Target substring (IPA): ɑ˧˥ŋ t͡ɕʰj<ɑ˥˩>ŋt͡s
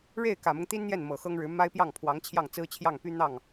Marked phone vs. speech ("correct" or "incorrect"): correct